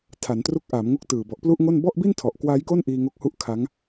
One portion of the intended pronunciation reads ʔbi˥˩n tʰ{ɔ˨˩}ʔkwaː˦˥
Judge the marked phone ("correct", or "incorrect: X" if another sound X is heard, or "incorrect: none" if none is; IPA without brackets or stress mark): correct